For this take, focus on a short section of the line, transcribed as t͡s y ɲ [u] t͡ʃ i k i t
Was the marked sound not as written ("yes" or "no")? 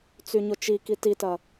yes